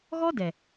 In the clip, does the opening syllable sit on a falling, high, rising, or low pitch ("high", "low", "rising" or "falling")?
high